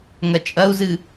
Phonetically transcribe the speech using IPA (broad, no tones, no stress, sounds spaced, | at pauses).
ŋ ɐ t͡ʃʼ ɐ u̯ z ɨ